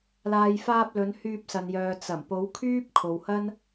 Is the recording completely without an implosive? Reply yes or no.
yes